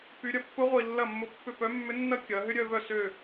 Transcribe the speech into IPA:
py˩˧ɾʲɐ˩˧pːʊ˧˥ ʁʷi˨˩lːɐ˥˩mːʊ˧˥pːʏ˥˩ pœ˧˥mːʏ˧˥nːɐ˥ kʲɐ˩˧ ɦʏ˥ɾʲœ˥˧vœ˥˩ sø˥˩

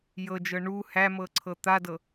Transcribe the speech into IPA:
jɤd͡ʒɤ ɳu hæmɤ ǀʰɤt̪adɤ

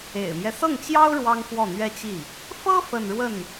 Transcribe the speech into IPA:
ḛ˨˩ɪ̯mjɛ˦sɤ˥˩ŋt͡ɕjɑ˥ʊ̯ ɻwɑ˥ŋfwɔ˥˩n̪ɥɛ˥t͡ɕi˥˩ | fɤ˥ fə˥˧nɻwə˥˩n

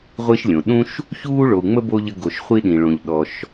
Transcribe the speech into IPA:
ʁʷi˦ʃlʲõ˩ɗũ˥ʃ | çuː˥ɭo˨u̯ ŋ͡mə˥bo˦ ʎə˦ɡo˨ʃ χʷi˥ɗĩ˩ɭõ˨ʎ ɗɔ˨ʃ

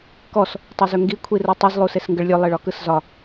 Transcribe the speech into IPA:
kɔs | tˤuzɵŋɡi kʷʰirɯtˤɯz lˠusesŋɡəɭlʲɵ lˠeɭɒkɯszɒ

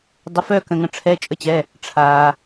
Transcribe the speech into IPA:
dˤə˩˧˩fœ˧˩kə̃˩ŋə̃˩ ʈ͡ʂʰɛ˩˧˩t͡ʃʼə˧˩t͡ɕɛ˩˧˩ | ʈ͡ʂʰaː˩

